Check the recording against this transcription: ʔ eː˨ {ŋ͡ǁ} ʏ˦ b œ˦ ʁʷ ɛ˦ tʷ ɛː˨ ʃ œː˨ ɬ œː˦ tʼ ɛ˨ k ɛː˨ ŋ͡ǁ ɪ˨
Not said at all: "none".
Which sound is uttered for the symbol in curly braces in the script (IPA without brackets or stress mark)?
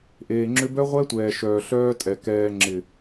ŋ͡ǁ